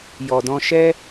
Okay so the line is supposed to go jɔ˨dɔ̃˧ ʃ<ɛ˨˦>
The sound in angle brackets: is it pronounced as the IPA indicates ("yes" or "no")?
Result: no